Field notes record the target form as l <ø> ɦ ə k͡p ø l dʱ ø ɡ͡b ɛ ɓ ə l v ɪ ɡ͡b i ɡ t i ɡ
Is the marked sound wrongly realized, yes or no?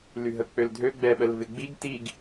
yes